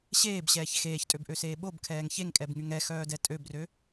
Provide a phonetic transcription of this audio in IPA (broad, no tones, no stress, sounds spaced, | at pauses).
ɕ eː b ɕ ɛː ç x eː ç tʼ ø b ʔ ø s eː ɓ o b kʰ ɛː ŋ ç e ŋ kʼ ɛ b ŋ y ŋ ɛ x œː d ɛ tʼ ø b r ø